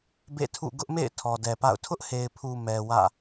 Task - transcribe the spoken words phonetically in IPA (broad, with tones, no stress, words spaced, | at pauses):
bḛ˦˨tʰṵ˦˨ ɡʊ˦ʔmḛ˦˨ɪ̯ tʰɔ˨dɛ˨pa̰˦˨ʊ̯ tʰʊ˦ʔhe˨ɪ̯pʰu˨ mɛ˨ wä̰˦˨